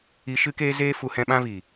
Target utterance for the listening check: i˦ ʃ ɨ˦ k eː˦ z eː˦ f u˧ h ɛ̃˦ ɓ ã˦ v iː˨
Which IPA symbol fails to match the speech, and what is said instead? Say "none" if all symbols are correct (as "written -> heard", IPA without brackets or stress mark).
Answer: none